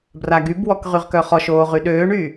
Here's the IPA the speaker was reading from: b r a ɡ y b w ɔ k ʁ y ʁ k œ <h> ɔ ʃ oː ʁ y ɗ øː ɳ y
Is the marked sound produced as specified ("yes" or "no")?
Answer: no